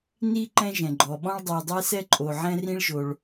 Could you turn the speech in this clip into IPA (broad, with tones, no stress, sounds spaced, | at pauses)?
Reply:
n i˥ ǃ ɛ̃˥ ʒ ɛ̃˩ ɡ͡ǃ ɔ˩ ɓ ɔ̃˥ ɭ dˤ u˩ dˤ ɛ˥ s ɛ˥ ǃʼ o˩ ʕ ɛ̃˥ r ĩ˥ ɭ ʒ o˩ ɭ